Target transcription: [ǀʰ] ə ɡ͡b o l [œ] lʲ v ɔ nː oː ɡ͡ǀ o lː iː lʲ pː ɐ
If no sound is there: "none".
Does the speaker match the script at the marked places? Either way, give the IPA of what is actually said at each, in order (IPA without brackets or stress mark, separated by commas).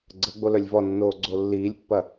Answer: ɡ͡ǀ, œ